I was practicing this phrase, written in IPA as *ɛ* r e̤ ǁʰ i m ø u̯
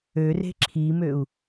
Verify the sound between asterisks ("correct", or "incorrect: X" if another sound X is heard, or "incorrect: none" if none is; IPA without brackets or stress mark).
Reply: incorrect: ø